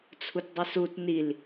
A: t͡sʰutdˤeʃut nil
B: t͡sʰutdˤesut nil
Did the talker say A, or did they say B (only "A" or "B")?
B